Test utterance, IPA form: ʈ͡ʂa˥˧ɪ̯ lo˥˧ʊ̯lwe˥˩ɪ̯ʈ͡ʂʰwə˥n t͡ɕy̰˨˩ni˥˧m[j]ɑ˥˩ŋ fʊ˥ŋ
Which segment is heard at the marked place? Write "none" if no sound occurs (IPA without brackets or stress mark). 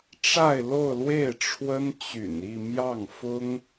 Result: j